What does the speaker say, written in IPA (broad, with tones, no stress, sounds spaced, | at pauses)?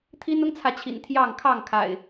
t̪ʰ i˦ n ʊ˦ ŋ t͡sʰ ä˨ t͡ɕʰ ḭ˨˩ n t̪ʰ j ɑ˥˨ ŋ kʰ ɑ˥˨ ŋ kʰ a̰˨˩ ɪ̯